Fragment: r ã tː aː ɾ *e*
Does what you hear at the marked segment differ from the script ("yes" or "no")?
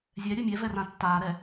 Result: yes